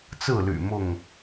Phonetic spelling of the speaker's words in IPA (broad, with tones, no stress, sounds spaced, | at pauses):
t͡s ɹ̩˥˨ l y̰˨˩ m ʊ˥˨ ŋ